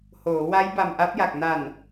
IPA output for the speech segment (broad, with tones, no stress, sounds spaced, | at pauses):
h oː˩˦ w a˦˥ j b a˧ m ʔ a˦˥ p̚ j a˨˩ k̚ n a˨˩ n